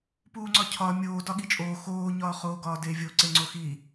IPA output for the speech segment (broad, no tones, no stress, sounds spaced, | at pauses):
p uː ŋ͡ǀ ɒ cʰ ɒ mʲ oː d ɒ ɠ i t͡ʃʼ oː x oː ɲ ɒː χ oː ɡ ɒː d e vʲ o ǀ e ŋ͡ǀ o x i